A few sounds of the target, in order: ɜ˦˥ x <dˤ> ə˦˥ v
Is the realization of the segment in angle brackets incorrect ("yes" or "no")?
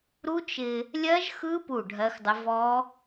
no